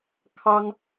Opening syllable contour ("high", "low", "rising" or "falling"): high